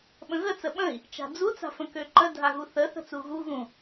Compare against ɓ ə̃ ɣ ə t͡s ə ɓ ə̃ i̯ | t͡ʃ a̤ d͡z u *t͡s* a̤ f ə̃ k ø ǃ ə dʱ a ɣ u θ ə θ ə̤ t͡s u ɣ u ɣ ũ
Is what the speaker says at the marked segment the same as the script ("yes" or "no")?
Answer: yes